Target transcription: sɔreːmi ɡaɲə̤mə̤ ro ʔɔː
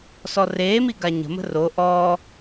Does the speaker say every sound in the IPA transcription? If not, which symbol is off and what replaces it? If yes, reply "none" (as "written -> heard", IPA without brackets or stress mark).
none